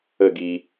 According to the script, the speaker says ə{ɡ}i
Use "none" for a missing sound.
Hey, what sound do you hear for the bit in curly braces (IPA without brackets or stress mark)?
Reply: ɡ